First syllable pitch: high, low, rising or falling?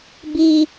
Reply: high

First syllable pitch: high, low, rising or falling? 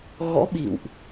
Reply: rising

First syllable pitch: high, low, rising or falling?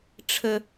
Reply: high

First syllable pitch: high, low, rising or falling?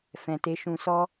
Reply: low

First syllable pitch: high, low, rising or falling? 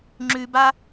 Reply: low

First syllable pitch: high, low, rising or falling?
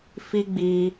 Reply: high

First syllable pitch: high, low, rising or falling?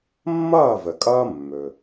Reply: falling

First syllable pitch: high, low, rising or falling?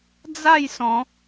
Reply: falling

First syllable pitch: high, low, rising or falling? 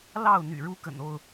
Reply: falling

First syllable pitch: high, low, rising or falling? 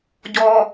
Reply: low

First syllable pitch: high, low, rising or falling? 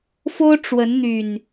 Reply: high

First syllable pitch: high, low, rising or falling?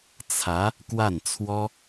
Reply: rising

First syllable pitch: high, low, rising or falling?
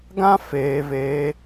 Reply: high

